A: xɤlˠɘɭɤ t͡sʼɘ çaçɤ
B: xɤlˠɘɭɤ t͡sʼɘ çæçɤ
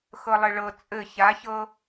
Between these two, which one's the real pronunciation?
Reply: A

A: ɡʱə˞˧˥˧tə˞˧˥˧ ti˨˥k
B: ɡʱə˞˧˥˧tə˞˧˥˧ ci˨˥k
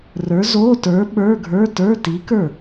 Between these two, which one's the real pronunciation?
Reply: A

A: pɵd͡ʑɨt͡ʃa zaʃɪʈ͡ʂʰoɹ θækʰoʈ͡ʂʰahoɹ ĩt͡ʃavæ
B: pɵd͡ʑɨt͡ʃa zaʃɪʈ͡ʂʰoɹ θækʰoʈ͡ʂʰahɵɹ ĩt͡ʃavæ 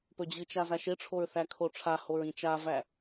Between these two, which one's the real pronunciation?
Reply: A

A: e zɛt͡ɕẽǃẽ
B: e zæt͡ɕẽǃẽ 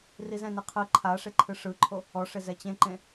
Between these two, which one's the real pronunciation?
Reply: A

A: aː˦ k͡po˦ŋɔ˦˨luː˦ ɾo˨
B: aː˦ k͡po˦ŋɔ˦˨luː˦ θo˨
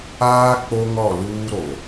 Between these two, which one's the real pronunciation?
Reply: A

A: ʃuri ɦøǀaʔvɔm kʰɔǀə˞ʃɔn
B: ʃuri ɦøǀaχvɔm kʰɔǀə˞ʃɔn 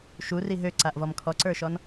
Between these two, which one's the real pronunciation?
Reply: A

